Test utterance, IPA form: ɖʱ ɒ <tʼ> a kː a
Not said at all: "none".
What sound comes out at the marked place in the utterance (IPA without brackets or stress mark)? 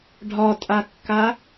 tʼ